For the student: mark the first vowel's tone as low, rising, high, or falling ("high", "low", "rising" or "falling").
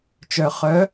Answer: low